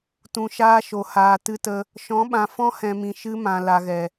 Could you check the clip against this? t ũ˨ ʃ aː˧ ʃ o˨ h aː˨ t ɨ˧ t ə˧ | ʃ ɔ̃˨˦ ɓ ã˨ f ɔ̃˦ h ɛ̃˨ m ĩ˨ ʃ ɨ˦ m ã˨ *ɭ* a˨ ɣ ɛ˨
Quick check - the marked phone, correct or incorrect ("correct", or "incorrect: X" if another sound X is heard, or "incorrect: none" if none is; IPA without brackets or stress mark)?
incorrect: l